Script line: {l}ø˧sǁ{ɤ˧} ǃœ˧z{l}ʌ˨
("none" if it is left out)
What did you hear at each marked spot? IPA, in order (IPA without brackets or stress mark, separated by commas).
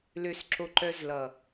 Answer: l, o˧, l